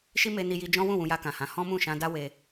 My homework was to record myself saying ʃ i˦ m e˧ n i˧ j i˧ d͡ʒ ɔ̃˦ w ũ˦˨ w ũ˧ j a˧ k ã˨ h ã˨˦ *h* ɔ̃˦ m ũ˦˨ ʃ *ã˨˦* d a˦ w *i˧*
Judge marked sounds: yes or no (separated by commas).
yes, no, no